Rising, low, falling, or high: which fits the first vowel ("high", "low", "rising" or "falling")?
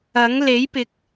rising